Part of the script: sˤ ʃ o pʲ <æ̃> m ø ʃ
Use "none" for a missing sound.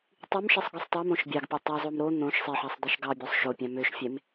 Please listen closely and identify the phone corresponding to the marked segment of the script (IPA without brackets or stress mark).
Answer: æ̃